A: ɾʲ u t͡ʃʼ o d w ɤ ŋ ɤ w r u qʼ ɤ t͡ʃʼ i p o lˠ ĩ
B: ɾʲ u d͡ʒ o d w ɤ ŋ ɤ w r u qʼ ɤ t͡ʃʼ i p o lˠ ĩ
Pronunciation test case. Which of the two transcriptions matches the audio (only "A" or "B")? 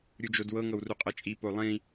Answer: B